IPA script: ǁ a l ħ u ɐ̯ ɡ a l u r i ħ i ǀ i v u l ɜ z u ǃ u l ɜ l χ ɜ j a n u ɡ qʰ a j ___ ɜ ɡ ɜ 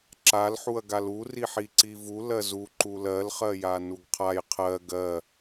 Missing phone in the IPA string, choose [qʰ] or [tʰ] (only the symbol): qʰ